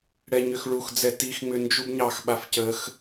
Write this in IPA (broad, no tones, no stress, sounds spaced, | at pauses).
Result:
ɽ ɛ ɲ ʏ x ɭ u x d͡z ɛ t i x ŋ͡m ʏ n d͡ʒ u b ɲ ɑ x ɓ a f c ə x